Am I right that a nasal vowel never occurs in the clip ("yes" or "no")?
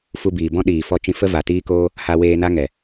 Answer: no